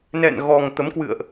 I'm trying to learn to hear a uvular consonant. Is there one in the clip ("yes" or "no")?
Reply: no